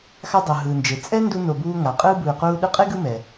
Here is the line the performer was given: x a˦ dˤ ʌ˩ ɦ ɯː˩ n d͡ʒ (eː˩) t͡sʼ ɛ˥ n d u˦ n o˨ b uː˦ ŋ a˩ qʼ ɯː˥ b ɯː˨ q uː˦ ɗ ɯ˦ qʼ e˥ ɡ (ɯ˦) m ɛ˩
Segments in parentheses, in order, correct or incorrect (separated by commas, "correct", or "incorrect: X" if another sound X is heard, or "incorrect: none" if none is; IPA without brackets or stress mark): incorrect: e˩, correct